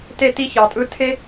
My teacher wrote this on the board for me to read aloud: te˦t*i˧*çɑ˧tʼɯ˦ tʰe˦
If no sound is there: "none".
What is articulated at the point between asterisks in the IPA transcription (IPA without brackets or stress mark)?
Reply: i˦